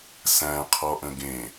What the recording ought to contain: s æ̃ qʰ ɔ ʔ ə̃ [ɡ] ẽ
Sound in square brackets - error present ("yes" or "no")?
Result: no